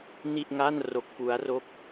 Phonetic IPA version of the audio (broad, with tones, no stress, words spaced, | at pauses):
ni˥˩ʔŋa˥˩n ro˦˥k̚fu˦˥a̯ro˥˩k̚